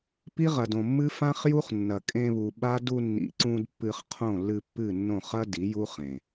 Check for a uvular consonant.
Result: present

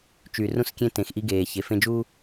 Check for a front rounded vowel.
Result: present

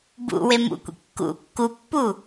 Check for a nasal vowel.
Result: absent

